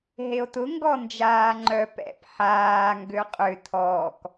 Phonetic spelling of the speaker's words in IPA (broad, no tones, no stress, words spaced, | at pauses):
ɦeo̯tʊ ŋɡɔ nd͡ʒaːŋ͡ǃœ pɛ̰p ħaː ŋɡøqʼʏ tʰɔːk